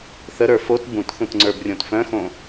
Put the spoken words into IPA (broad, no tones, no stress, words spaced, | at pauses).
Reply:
θəɾə˞ fot bũtθũt ŋ͡ǀə˞brʲõtfœ̃xõ